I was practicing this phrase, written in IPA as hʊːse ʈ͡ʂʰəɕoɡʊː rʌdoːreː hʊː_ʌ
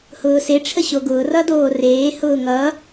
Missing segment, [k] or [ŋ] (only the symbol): ŋ